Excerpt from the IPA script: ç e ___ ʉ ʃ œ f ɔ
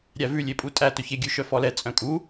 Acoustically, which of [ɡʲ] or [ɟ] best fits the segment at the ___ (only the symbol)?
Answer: ɡʲ